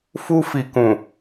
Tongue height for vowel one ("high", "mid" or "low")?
high